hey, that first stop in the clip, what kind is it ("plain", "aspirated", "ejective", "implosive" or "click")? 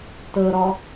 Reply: plain